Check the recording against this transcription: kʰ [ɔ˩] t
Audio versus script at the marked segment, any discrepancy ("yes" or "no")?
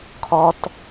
no